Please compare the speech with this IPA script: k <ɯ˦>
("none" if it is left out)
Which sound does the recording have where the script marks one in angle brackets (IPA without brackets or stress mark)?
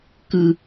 ɯ˦